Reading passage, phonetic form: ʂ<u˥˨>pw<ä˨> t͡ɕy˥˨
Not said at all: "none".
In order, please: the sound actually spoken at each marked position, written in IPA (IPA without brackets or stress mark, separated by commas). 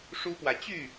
u˦, ä˨